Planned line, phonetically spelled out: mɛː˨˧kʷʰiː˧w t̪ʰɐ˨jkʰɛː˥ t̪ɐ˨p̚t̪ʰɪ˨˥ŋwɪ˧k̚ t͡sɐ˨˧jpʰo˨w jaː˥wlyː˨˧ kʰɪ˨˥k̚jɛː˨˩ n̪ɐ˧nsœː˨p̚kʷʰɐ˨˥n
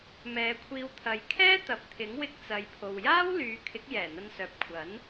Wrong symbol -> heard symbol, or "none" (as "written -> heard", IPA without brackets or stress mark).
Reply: none